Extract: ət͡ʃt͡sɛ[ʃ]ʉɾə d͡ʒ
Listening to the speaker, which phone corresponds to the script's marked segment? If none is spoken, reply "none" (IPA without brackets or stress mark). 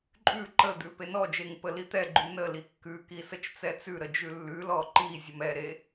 t͡s